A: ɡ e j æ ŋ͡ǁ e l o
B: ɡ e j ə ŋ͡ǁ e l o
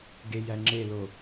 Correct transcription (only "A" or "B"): A